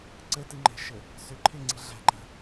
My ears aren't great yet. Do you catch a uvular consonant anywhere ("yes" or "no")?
no